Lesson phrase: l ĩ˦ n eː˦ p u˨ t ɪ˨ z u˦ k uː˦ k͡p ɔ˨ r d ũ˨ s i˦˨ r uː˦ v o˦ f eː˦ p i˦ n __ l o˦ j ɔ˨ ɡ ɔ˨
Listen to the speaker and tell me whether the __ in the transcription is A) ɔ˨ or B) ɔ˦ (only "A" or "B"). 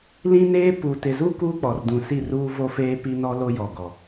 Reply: B